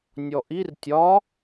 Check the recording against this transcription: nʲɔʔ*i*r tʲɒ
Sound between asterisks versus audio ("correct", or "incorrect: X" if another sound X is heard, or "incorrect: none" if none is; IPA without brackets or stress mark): correct